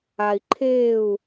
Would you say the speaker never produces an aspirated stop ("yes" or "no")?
no